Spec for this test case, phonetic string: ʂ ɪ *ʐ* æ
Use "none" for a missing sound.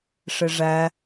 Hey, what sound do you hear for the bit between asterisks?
ʐ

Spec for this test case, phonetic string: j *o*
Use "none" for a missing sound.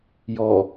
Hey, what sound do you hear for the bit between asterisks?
ɔ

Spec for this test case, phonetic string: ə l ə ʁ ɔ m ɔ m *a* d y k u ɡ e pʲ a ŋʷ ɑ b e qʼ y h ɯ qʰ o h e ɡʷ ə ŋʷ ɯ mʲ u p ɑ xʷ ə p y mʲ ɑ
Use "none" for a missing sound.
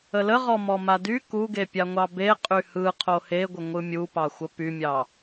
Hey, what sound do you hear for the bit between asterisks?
a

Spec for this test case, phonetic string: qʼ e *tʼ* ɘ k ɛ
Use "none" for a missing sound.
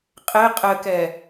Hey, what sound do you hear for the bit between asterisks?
qʼ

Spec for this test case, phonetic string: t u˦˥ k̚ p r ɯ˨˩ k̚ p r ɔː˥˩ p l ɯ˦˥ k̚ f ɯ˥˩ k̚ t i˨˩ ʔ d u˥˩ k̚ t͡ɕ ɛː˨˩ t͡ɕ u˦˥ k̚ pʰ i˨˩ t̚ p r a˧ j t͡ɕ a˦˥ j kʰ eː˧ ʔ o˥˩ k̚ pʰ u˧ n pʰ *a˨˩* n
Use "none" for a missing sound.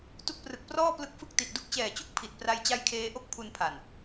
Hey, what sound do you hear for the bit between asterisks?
a˨˩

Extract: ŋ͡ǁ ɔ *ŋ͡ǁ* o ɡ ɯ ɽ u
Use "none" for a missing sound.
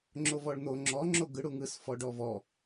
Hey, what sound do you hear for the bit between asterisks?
ŋ͡ǁ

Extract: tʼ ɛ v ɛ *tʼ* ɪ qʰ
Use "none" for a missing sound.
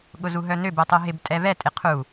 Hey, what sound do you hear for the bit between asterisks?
tʼ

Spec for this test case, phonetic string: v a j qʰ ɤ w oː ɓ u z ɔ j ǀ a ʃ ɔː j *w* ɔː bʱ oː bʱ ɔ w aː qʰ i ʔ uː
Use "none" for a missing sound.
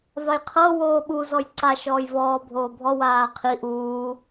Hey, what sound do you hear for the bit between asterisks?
v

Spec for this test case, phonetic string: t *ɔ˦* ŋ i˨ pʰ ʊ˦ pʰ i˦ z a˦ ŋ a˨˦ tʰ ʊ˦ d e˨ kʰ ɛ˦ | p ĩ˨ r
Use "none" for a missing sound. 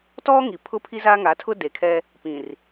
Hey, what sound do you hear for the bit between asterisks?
ɔ˦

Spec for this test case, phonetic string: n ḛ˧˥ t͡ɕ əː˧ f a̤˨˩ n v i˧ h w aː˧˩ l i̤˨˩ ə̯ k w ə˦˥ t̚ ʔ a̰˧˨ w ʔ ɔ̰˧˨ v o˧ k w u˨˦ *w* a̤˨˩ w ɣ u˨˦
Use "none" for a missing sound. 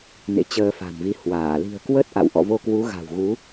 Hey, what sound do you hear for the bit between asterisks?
ɣ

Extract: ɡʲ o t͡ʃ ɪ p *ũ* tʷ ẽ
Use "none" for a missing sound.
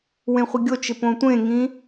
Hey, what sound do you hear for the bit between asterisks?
õ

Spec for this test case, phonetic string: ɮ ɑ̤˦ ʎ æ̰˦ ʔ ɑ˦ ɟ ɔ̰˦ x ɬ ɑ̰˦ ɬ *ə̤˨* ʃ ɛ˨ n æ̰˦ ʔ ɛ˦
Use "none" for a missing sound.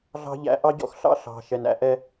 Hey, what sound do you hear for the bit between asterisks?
ɑ̤˨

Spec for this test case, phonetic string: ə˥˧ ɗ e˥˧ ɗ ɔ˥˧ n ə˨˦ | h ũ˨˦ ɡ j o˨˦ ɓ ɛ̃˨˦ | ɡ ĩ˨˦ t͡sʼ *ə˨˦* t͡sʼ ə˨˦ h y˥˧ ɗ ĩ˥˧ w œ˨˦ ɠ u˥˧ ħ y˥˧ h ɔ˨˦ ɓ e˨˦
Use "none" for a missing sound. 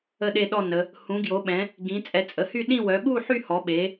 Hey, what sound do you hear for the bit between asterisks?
ɛ˨˦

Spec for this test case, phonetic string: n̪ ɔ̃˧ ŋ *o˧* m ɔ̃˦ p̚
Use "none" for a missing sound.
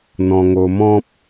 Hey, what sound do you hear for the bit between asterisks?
o˧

